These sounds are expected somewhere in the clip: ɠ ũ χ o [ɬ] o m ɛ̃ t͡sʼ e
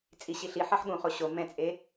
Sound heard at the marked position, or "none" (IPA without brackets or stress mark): ɕ